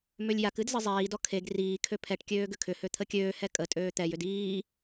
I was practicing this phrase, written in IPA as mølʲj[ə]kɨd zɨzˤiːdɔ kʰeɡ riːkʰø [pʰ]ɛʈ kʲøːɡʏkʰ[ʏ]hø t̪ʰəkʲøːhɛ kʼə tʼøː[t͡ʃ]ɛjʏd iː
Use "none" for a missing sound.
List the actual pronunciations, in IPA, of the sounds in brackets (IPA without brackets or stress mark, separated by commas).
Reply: a, pʰ, ʏ, t̪